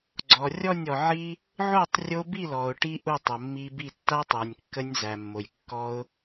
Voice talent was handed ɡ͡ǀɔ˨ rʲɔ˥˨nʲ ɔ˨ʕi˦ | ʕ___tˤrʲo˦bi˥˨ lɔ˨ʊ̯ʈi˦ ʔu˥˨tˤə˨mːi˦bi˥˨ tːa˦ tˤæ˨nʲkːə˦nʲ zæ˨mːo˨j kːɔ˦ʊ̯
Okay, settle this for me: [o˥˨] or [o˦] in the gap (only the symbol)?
o˥˨